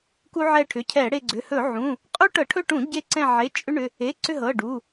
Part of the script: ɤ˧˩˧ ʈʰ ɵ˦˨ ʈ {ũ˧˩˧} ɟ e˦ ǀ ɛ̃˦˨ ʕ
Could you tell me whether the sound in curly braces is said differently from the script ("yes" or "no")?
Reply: no